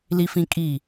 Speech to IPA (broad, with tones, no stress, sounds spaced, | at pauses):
l i˦ f ĩ˦ kʼ i˦˨